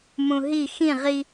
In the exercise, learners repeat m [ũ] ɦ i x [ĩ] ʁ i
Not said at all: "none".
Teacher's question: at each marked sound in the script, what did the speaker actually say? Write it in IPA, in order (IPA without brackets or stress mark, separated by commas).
ũ, ĩ